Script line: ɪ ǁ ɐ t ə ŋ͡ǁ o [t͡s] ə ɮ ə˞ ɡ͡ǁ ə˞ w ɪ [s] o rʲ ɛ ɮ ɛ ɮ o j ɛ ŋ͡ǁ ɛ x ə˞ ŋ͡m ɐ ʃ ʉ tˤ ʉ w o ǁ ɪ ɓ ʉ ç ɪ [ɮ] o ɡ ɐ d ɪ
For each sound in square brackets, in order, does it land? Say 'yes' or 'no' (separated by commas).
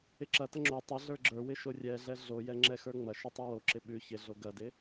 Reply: no, no, yes